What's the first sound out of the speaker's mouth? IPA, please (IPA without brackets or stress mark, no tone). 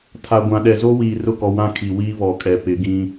tʰ